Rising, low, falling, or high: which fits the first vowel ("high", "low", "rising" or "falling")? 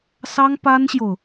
high